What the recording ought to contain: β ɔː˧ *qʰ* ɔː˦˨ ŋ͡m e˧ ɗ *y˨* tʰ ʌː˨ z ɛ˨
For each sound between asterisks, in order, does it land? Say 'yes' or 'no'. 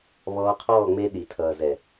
yes, no

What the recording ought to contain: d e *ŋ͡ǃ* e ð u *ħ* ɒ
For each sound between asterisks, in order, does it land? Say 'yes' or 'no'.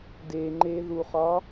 yes, no

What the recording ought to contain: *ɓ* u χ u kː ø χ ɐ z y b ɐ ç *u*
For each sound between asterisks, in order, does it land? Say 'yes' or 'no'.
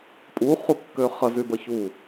no, yes

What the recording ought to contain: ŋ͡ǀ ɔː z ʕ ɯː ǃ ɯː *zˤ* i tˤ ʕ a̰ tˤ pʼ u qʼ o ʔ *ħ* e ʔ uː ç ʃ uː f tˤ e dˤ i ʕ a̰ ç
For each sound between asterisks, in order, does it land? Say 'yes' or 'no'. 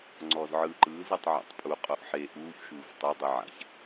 no, yes

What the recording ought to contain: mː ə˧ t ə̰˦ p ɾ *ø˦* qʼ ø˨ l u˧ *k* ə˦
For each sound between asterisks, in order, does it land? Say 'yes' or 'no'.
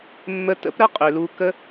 no, yes

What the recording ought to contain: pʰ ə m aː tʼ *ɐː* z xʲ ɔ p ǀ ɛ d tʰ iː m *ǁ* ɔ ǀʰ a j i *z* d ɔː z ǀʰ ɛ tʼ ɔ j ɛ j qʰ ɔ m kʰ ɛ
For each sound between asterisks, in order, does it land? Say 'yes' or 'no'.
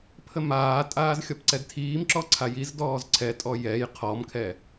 no, yes, yes

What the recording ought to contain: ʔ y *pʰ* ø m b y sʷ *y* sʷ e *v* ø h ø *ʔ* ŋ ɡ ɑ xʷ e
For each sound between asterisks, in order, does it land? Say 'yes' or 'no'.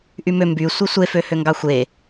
no, no, no, no

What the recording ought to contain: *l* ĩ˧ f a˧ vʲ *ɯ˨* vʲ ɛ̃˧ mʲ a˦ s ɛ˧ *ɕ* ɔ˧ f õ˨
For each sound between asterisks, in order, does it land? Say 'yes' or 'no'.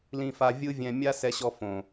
yes, no, yes

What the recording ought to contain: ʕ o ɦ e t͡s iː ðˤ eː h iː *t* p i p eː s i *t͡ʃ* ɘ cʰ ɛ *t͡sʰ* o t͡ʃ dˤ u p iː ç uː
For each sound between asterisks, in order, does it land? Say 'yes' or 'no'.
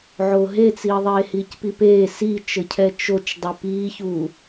no, yes, no

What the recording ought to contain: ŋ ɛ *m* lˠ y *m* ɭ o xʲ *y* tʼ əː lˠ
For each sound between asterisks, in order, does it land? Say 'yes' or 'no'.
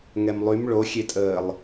yes, yes, no

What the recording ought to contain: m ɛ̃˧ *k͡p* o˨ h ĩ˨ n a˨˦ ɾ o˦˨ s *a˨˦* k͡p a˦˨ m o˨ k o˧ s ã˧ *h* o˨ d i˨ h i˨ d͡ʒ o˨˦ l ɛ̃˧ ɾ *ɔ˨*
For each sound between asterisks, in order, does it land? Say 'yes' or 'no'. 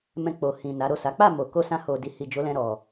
yes, yes, yes, yes

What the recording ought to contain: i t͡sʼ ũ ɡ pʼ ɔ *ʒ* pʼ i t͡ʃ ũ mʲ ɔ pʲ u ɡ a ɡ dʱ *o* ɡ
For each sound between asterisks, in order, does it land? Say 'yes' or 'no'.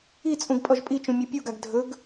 yes, no

